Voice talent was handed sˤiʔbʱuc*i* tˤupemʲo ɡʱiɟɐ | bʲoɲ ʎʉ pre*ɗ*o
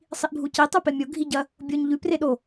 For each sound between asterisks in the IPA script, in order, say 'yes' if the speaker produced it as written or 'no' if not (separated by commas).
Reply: yes, yes